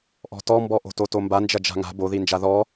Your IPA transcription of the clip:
ʔ ɔ̤ t ɔ m b ɔ ʔ o̤ t o t o m b a n d͡ʒ ɐ d͡ʒ a̤ ŋ a̤ b o ð i n d͡ʒ a ð ɔ

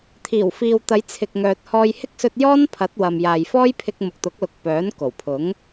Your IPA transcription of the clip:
t̪ʰ iː˨˩ w f iː˨ w t̪ ɐ˨˧ j t͡sʰ ɪ˨ k̚ ŋ œː˨ t̚ h ɔː˧ j h ɪ˥ k̚ s ɵ˧ t̚ j ɔː˥ n pʰ ɐ˨˥ t̚ w ɐ˨ m j aː˨ j f ɔː˥ j pʰ ɪ˧ k̚ m ʊ˨ k̚ t̪ ʊ˨˥ k̚ l ʊ˨˥ k̚ p œː˨˥ n k o˨˩ w pʰ ʊ˨˥ ŋ

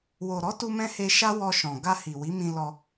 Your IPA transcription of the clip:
w o˨ ɾ ɔ˨˦ t u˧ m ɛ̃˧ h e˧ ʃ a˦ w ɔ˧ ʃ ɔ̃˨ ɡ a˧ h i˨ w i˨˦ m ĩ˧ l ɔ˧

